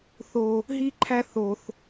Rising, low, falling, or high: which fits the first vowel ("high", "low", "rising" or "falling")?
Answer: high